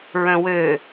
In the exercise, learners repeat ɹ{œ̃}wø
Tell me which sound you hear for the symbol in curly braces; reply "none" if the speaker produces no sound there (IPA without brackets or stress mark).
œ̃